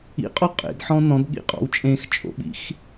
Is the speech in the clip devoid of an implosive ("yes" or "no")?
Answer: no